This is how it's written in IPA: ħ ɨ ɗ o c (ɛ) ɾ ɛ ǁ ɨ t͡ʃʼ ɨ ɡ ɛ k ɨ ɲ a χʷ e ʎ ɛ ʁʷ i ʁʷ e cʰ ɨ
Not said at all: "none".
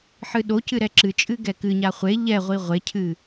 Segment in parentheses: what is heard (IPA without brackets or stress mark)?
ɨ